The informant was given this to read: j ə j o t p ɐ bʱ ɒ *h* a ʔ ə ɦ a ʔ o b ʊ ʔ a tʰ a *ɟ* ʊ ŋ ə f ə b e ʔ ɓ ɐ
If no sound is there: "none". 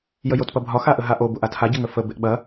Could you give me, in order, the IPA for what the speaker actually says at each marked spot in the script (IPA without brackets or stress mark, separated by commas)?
x, ɟ